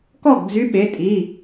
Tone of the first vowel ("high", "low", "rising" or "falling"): falling